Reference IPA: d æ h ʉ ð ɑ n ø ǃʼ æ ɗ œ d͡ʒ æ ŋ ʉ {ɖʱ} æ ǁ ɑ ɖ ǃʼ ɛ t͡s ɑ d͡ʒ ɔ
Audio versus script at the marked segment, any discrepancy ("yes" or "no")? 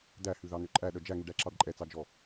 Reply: yes